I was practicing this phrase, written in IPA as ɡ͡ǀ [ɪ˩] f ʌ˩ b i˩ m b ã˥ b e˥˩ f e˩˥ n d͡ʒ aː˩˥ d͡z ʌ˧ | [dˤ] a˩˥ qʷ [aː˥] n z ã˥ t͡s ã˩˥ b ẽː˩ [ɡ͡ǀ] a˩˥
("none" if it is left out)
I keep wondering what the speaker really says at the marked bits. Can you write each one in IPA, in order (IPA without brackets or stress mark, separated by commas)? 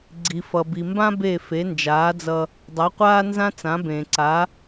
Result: i˩, dˤ, aː˥, ǀ